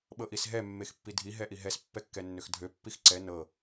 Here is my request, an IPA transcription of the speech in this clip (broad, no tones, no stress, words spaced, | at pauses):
ɓɤʔisɦɛ mːexpːidʱi ɦɛʔiɦɛs pːɛkːɛnːøxdʱø pːixǀɛ nɤ